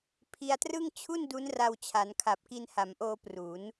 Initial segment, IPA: pʰ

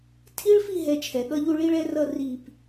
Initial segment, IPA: tʰ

